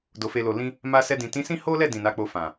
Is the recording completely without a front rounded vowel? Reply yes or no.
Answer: yes